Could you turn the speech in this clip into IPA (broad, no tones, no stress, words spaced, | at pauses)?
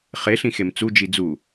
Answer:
χeɬĩxem t͡sud͡ʒi d͡zu